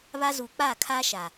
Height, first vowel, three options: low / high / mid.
low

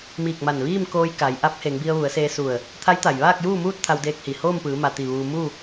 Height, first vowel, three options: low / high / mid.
high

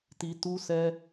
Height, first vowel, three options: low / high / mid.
high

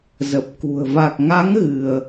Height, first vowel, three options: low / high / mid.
mid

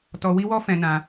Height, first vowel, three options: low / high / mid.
mid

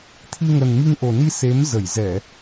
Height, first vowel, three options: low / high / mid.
high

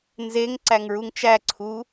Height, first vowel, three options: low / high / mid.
mid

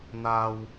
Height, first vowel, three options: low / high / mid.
low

